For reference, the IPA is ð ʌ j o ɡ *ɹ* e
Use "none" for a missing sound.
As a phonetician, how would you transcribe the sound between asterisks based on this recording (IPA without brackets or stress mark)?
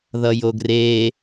r